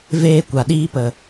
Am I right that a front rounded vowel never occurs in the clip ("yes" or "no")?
yes